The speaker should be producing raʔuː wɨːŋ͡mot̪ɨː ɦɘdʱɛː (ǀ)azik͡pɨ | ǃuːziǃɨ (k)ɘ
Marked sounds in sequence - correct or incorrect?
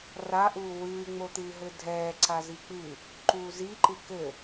correct, correct

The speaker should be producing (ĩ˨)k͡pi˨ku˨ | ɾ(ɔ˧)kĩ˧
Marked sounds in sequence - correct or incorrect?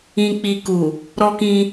correct, correct

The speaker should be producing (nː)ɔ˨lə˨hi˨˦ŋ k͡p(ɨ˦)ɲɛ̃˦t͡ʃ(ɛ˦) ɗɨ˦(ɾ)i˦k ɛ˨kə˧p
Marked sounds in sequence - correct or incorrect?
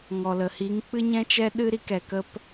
incorrect, correct, correct, correct

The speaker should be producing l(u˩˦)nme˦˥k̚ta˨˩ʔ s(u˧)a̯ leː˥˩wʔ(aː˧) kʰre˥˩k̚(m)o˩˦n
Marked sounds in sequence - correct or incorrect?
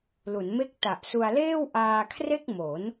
correct, correct, correct, correct

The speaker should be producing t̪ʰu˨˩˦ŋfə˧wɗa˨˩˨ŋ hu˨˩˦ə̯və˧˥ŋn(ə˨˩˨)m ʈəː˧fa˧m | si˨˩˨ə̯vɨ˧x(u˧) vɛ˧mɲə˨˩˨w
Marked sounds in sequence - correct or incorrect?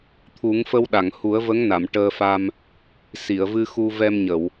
incorrect, correct

